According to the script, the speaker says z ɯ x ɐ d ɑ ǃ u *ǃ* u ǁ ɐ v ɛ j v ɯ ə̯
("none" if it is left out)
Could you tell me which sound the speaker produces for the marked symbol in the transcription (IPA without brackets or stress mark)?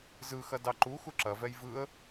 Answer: x